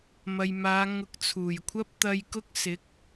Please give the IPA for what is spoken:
mɐ˨jmaː˨˧ŋʊ˨˥k̚ t͡sʰuː˨˩jkʷʰɐ˥p̚ t̪ɐ˧jkʊ˥k̚ sɪ˨˥k̚

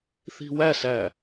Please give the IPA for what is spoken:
θi̤wæsæ

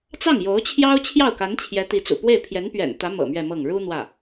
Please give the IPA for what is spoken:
t͡sɑ˥˩ŋjo˧˥ʊ̯t͡ɕʰjɑ˥ʊ̯ t͡ɕʰjɑ˥˩ʊ̯ka˧˥n t͡ɕʰjɛ˧˥t̪i˧˥t͡sṵ˨˩pwe˥˩ɪ̯ pʰjɛ˧˥npɥɛ̰˨˩nt̪ä˧˥ mɤ̰˨˩ mɥɛ˥˧mɤ˥˩ŋ ɻu˥ n̪wä˥˩

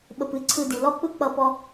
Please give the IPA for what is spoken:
ɓə˨pɨ˨ ǀʰɯ˧di˨ lɔ˦k͡pɯ˦k͡pʌ˧ pɔ˧

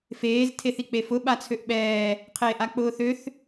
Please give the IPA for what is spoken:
feːz tʰeθik͡pefʊ ɓat͡sʰøʔɓɛː | qʰeːʔak͡pʊːθøθ

